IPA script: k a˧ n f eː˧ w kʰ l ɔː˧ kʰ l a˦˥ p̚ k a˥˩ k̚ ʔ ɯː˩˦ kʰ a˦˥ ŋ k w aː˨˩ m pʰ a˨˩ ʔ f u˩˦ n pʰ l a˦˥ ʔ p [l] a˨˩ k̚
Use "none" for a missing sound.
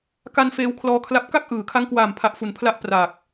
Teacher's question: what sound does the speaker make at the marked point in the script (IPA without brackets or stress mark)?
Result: r